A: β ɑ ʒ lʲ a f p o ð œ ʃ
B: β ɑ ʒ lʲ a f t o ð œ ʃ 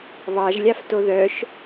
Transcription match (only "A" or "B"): B